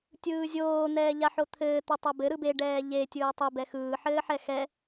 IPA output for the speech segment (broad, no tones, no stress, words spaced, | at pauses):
tʲɯːzʲoː n̪ɛːʎaħot̪ʰɘː t̪ɯtˤabɘ ɾɯbe ɖɛːʎe tʲɯːtˤe bɛxɯː ħɘːħɛxɛ